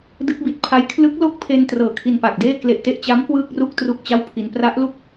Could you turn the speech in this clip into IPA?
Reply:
d ɯ˦˥ k̚ b i˨˩ t̚ pʰ a˦˥ j kʰ l ɯ˦˥ k̚ l o˥˩ k̚ pʰ e˧ n t r ɤː˨˩ kʰ i˧ n p a˨˩ k̚ d eː˥˩ k l e˨˩ ʔ t e˦˥ ʔ t͡ɕ a˦˥ m k w ɯː˥˩ k̚ r u˥˩ k̚ t r u˥˩ k̚ t͡ɕ a˥˩ w pʰ i˧ n p r a˦˥ ʔ l u˥˩ k̚

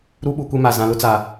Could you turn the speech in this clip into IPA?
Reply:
ɾ u˦ ɓ u˨ kʷ e˦ m a˨ z ã˨ l ʊ˦ t͡s a˨

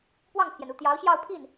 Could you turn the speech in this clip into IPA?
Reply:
p w ɑ˥˩ ŋ pʰ j ɛ˩ n u˥˩ t̪ j ɑ˧˥ ʊ̯ ɕ j ɑ˥˧ ʊ̯ pʰ i˥˩ n

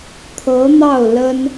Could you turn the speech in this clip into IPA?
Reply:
t̪ʰ ɤ˧˥ n̪ ɑ˥˩ ʊ̯ l ə˥ n

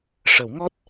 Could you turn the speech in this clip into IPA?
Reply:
ʂ ə˨˩˦ w ŋ ɔ˦˥ t̚

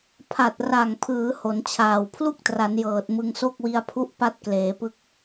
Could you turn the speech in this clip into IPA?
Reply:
pʰ a˨˩ t̚ r a˨˩ ŋ pʰ ɯː˩˦ h o˩˦ n t͡ɕʰ aː˨˩ w pʰ l u˥˩ k̚ t r a˩˦ n j ɤː˨˩ t̚ m ɯ˧ ŋ s o˥˩ k̚ w i˧ a̯ pʰ u˦˥ ʔ p a˦˥ t̚ k l eː˩˦ p ɯ˦˥ k̚

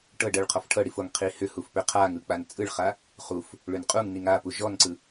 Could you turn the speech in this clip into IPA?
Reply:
ʈ ɤ ɖ ɤ ɭ qʰ ɔ f ʈʰ ɤ ɽ i f o ŋ qʰ i h ʏ h u f p ʏ qʰ a ŋ ɯ k͡p a n t͡sʼ ɯ ɭ χ a | χ u f | ɭ ʏ n qʼ u ŋ n i ŋ a p u ʒ ɔ n ǀ ɯ

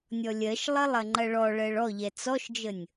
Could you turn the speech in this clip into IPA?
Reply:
nʲ ɔ lʲ ɜ ʃ lˠ ɐ lˠ ɐ ŋ͡ǃ ɐ ɭ ɔ ɭ ɜ ɭ ɔ ʎ ɛ t͡s ɔ ʃ d͡ʒ ə nʲ

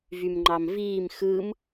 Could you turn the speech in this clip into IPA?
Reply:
v y m ŋ͡ǃ ɑ m v iː m x ɯ m

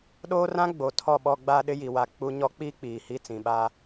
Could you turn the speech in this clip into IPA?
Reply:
ɗ oː˦ r ã˦ ɡ͡b o˨ tʰ ɔ˦˨ ɓ ɔ˦ ɡ͡b aː˦ ɗ ɪ˦ j i˨ w a˨ k͡p u˦ ɲ ɔ˦ k͡p iː˦ k͡p iː˨ h i˦˨ t͡s ĩ˨ ɓ aː˦

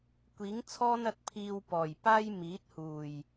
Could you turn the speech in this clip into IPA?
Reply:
kʷ iː˨˥ ŋ t͡sʰ ɔː˥ n ɐ˧ t̚ pʰ iː˧ w p ɔː˨˩ j p aː˥ j m iː˨˥ t̚ h uː˨˩ j

